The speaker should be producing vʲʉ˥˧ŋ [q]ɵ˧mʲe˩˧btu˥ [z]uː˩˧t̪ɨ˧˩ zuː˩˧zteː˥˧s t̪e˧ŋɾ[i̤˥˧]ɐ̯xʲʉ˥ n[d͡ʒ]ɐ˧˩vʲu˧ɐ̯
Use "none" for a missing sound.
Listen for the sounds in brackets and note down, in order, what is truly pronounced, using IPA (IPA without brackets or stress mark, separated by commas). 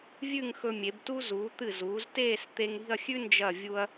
x, z, i̤˥˧, d͡ʒ